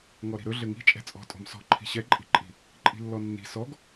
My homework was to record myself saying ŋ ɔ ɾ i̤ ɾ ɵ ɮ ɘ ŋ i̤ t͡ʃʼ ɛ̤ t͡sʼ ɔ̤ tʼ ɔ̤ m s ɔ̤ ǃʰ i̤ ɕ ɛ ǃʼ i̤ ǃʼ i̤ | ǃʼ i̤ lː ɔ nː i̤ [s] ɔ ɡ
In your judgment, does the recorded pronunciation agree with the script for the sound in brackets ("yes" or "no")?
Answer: yes